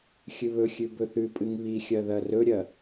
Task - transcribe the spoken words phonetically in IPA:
xʲ ɨ β ɵ xʲ ʉ b ɵ θ ʉ pʼ ɨ ŋ β i xʲ ɐ ð ɐ r ɵ ɾʲ ɐ

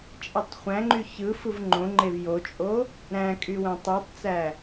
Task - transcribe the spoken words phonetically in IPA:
t͡ʃʼ e tˤ χʷ æ̃ ŋ͡ǃ y ç ɯ f ɯ v ŋ͡ǃ õ ŋ͡ǃ e v j o t͡ʃʼ o | ɾ æ̃ kʼ y w æ̃ tˤ ɯ tˤ t͡s æ

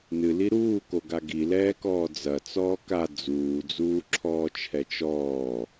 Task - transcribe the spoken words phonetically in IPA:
n ɨ l i ɾ uː k o ɡ a ɡ i l ɛː k ɔː d͡z ɐ t͡s ɔː k a d͡z uː d͡z uː ǁʰ ɔː t͡ʃʰ ɛ t͡ʃ ɔː

